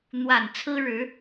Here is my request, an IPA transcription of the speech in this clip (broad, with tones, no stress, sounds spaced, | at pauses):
n̪ w a˨˩ n t͡sʰ ɹ̩˥ ɻ ɻ̩˧˥